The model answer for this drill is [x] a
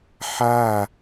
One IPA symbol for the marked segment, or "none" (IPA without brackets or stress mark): ħ